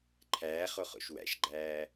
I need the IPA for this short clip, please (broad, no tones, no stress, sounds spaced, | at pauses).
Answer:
ǃʰ æː χ o χ o̰ ʃ w æ̰ ʃ ɡ͡ǃ æː